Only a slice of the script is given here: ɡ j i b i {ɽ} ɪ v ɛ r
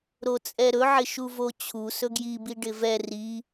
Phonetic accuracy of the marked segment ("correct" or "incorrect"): incorrect